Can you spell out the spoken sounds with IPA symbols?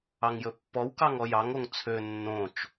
ɑ ŋ j ɵ pː ɔ w k ɑ ŋ ɔ j ɑ ŋ o ŋ t͡sʰ ø nː õ t͡ʃ

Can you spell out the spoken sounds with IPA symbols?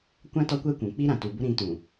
kʷ ã˦ t ɔ˦ kʷ ɛ˦ kʷ ũ˨ k͡p i˦ ɾ ã˨ t u˨ b ʊ˦ ɾ ĩ˨˦ t ũ˨

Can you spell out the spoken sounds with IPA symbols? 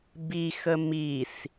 b i x ə m i s

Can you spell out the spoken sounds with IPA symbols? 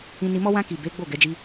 ĩ˧ n i˧ m ɔ˦ w ã˦ k i˦˨ b e˨˦ ɡ͡b o˦˨ ɡ ɛ˨˦ d͡ʒ i˦

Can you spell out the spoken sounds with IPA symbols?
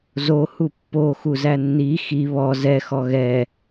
z o h u pː o x u z æ nː i x i β ɔ z ɛ x ɔ ɣ ɛ

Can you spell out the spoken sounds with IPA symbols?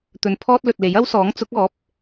t̪ ɵ˨ n pʰ ɔː˥ t̚ l ɵ˨ t̚ l e˨˥ j ɐ˥ w s ɔː˨˥ ŋ t͡s ʊ˨˥ k̚ ɔː˨˥ p̚

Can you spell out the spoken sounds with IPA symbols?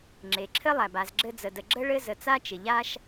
ŋ͡ǁ e˩ ǁʰ ɘ˦ lˠ æ˩ b a˨ z ɡ͡ǁ ɘ˦ d͡z ə˨ d ə˨ ɡ͡ǁ ə˥ ɭ ɘ˦ z ə˨ t͡s a˥ t͡ʃ ɪ˩ ʎ a˦ ʃ

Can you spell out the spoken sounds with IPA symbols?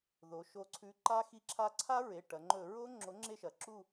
ð o˩˧ ʃ o˨˥ ǀʰ ʉ˨˥ ǃ a˦˥ x i˦˨ ǁʰ a˦˥ ǀʰ a˦˥ ɹ e˩˧˩ ʈ ɐ˩˧ ŋ͡ǃ ɵ˧˩˧ ɹ o˦˥ ŋ͡ǁ o˨˥ ŋ͡ǁ e˦˨ ʃ ɐ˩˧ ǁ u˦˨

